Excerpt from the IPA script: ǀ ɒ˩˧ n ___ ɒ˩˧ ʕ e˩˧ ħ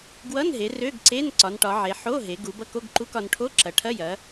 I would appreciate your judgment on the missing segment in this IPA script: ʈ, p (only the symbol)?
ʈ